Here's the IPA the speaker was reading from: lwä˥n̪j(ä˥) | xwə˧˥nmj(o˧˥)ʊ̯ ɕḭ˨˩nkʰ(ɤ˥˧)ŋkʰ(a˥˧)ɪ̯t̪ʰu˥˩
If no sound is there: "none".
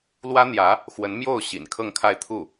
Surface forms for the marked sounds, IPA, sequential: ä˧˥, o˥˩, ɤ˥˧, a˥˧

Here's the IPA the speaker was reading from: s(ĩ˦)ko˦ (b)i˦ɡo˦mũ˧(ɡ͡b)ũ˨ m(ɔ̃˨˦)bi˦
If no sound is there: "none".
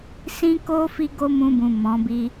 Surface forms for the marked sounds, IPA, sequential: ĩ˦, f, b, ɔ̃˨˦

